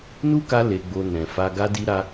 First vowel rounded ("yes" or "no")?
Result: yes